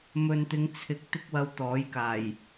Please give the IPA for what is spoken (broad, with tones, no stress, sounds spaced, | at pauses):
m ɵ˨ n t̪ ɪ˨˧ ŋ t͡sʰ ɪ˨˥ k̚ t̪ ɪ˧ k̚ w ɐ˨˧ w t̪ ɔː˨˥ j k aː˨˩ j